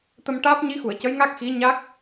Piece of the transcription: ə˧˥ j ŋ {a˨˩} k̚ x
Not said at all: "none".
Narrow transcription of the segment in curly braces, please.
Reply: a˦˥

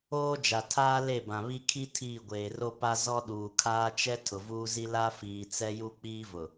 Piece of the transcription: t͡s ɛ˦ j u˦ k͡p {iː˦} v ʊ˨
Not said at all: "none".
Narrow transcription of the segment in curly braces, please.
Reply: iː˦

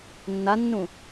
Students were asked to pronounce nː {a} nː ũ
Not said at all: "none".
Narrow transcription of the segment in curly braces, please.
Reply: a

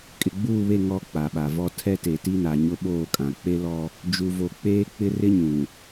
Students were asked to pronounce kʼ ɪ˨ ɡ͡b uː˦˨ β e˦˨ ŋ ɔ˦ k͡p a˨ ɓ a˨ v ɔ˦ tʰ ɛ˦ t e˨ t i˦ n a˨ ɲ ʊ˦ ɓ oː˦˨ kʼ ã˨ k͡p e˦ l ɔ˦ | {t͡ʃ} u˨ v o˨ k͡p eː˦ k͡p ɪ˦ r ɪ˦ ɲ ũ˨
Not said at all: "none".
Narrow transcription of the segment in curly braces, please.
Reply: d͡ʒ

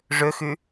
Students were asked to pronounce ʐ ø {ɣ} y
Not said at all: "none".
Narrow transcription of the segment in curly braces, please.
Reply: x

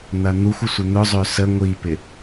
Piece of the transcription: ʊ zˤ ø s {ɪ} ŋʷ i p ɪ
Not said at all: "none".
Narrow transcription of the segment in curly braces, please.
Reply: ə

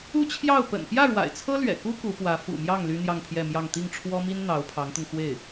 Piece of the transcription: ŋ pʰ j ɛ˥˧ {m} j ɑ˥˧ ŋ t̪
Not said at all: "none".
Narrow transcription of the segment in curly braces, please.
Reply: m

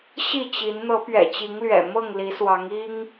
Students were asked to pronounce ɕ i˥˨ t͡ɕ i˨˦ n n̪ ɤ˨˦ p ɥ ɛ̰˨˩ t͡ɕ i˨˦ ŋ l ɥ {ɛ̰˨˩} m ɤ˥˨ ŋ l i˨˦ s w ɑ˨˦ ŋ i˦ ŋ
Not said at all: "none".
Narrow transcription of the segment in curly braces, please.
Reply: ɛ̰˨˩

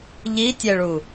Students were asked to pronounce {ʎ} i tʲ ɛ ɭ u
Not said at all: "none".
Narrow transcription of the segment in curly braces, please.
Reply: ʎ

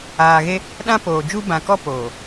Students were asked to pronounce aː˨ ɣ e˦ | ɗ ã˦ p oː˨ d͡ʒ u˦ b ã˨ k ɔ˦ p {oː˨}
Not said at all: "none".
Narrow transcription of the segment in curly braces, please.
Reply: oː˨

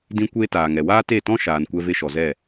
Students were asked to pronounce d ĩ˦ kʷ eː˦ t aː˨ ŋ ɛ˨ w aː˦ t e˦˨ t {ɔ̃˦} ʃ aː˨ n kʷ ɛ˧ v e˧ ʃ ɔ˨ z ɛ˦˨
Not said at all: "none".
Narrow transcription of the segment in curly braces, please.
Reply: ɔ̃˦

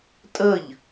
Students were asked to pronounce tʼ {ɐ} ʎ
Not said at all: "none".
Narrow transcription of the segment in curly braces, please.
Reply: ə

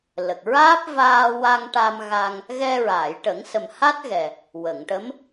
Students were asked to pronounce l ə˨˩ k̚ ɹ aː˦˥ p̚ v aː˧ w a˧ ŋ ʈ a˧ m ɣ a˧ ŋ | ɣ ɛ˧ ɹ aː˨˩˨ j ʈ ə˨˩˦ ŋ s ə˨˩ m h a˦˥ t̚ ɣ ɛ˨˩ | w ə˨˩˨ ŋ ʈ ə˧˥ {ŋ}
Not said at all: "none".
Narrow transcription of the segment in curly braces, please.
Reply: m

